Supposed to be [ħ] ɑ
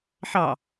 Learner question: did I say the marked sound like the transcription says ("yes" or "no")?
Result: yes